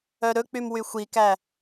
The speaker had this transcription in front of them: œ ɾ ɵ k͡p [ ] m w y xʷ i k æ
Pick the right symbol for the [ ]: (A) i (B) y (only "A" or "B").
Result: B